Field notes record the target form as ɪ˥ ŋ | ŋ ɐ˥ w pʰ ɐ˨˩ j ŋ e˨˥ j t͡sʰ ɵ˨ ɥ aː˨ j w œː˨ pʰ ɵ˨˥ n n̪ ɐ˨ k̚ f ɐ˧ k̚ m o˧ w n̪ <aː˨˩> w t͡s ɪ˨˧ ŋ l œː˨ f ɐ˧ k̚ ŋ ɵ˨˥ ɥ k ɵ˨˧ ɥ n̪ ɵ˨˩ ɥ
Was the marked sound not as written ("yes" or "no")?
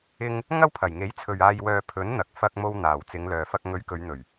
no